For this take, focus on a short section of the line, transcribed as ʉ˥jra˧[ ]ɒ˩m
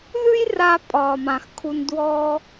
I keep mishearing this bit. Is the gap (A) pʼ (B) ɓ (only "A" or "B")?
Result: A